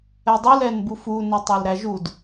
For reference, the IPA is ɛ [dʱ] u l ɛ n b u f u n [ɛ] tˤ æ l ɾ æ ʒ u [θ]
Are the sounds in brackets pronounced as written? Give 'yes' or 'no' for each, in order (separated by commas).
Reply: no, yes, no